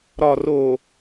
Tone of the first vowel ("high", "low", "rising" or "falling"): low